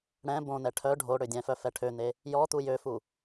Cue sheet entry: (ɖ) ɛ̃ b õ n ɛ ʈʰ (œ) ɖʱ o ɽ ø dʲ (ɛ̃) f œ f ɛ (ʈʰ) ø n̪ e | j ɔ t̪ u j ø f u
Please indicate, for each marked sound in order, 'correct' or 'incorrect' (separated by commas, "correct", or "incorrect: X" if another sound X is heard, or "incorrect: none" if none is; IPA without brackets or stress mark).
incorrect: ɽ, correct, correct, correct